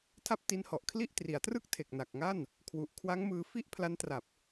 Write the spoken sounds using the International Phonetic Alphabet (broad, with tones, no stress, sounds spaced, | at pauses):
tʰ a˥˩ p̚ t i˦˥ n h ɔ˨˩ ʔ kʰ l i˥˩ ʔ t r i˩˦ a̯ t r ɯ˥˩ k̚ tʰ e˨˩ k̚ n a˨˩ k̚ ŋ a˥˩ n | kʰ w u˨˩ ʔ kʰ w a˦˥ ŋ m ɯː˧ f i˥˩ ʔ pʰ l a˦˥ n t r a˨˩ p̚